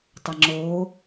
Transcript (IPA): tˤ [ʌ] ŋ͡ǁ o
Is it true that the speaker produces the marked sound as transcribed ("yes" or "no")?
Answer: yes